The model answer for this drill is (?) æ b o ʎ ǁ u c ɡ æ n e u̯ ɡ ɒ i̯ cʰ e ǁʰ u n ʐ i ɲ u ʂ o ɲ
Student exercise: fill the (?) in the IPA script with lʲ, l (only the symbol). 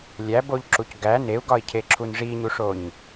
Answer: lʲ